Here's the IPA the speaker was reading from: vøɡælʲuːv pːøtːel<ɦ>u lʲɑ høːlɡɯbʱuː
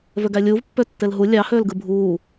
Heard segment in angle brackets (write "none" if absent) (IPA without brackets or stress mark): ɦ